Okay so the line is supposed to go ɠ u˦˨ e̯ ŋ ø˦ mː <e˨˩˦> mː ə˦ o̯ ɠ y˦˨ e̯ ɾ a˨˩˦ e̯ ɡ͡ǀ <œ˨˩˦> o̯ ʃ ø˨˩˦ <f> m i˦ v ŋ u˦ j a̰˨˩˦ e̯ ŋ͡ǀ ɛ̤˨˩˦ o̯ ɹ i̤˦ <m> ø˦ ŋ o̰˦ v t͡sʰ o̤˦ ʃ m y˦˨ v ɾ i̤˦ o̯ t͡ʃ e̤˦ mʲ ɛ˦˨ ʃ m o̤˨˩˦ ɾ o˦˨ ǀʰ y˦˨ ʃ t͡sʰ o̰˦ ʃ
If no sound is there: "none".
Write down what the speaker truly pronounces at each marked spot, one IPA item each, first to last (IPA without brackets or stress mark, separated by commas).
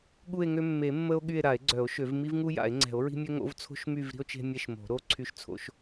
e˨˩˦, œ˨˩˦, v, mʲ